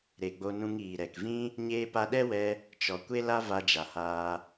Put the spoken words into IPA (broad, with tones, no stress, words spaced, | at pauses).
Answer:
ɾe˨ɡ͡bo˧nũ˧ŋ iː˨ɾɛ˨kvĩ˦ | ɲeː˧pa˧ɗɛ˦wɛ˧ | t͡ʃɔ˨ kʷe˦la˦ va˧d͡ʒa˨haː˧